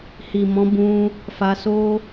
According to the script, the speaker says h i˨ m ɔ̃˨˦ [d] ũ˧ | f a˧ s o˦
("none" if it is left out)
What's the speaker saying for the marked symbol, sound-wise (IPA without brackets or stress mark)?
b